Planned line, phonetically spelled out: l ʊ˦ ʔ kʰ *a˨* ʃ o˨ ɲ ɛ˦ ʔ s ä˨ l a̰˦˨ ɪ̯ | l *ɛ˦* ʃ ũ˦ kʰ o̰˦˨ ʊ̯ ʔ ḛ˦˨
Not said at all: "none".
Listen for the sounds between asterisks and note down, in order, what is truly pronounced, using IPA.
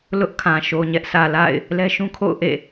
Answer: ã˨, ɛ˦

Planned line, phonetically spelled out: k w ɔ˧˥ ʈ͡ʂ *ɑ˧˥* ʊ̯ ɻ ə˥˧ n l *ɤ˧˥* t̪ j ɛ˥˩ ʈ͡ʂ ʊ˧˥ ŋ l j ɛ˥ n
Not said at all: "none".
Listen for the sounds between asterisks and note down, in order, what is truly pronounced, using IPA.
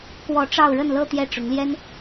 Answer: ɑ˥˧, ɤ˥˧

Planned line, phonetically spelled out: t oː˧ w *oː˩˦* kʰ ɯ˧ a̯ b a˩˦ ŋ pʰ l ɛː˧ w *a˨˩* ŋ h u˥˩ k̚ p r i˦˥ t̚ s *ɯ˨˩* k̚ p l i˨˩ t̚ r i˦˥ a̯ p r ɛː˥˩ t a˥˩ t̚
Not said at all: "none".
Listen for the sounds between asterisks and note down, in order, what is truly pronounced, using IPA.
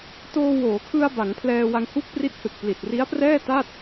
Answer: oː˩˦, a˧, ɯ˨˩

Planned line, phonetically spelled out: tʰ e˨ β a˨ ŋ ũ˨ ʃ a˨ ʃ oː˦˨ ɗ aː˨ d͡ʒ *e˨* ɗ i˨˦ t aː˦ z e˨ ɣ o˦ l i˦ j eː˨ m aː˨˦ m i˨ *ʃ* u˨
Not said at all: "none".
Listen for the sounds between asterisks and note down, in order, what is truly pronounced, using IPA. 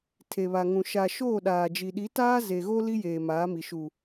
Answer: i˨, ʃ

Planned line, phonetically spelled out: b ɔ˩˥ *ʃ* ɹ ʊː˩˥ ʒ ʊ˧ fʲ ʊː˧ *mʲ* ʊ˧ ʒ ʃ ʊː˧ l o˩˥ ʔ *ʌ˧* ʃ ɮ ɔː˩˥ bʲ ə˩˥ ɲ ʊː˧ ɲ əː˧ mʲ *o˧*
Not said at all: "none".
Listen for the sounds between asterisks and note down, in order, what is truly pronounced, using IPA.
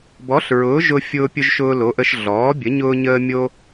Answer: ɬ, pʲ, ə˧, o˧

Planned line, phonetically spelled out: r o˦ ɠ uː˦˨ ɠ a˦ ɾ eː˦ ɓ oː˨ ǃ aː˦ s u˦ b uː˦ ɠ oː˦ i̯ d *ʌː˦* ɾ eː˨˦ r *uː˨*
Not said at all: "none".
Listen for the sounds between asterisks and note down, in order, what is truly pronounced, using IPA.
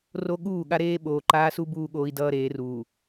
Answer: ʌː˦, uː˨

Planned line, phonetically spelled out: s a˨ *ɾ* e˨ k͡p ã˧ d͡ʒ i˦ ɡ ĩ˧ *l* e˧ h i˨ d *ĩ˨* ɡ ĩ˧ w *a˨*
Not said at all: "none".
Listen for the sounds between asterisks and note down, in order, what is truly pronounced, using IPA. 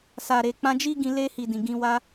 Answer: ɾ, l, ĩ˨, a˦

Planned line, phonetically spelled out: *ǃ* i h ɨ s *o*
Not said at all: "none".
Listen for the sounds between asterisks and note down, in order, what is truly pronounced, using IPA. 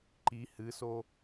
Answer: ǃ, o

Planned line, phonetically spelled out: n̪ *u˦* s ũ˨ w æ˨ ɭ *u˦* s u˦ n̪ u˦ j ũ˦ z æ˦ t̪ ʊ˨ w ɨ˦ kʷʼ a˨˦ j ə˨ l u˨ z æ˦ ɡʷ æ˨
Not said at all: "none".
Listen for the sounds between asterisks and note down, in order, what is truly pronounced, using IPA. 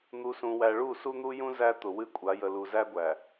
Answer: u˨, u˦˨

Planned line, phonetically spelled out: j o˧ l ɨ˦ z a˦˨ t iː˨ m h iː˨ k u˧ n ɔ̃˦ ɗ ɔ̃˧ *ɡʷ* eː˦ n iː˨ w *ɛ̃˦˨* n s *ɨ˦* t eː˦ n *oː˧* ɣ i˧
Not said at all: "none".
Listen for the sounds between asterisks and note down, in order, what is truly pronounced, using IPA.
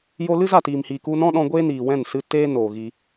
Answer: ɡʷ, ɛ̃˦˨, ɨ˦, oː˨

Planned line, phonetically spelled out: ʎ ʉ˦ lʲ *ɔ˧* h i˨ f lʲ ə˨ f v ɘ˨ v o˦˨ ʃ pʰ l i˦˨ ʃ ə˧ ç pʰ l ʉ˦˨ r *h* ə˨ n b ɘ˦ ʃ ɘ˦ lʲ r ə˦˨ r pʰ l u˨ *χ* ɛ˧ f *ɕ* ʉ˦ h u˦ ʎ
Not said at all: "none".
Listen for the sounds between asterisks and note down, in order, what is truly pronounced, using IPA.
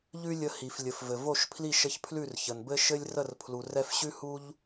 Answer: ə˧, ç, r, ɕ

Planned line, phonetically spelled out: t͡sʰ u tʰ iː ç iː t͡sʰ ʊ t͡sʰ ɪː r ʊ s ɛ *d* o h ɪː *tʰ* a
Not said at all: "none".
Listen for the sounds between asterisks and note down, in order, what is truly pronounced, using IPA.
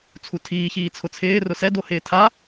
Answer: d, tʰ

